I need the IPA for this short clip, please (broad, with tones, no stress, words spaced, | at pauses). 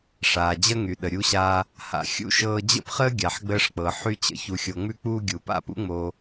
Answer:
ʂaː˨d͡ʑə˦ŋy˨ɗə˨ ɾʲu˦ɕaː˦ | ha̰˨xʲṵ˦ʃɤː˧ d͡ʑə̰˦pχəː˦ɡʲa˨ħ ɡ͡bəː˧ʂk͡pɤ˨ ħy˧t͡ɕə̰˧ çu˨xʲo˨ŋ͡mʉ˧k͡puː˧ ɡʲu˨pa̰˦pṵ˦ ŋ͡mo˧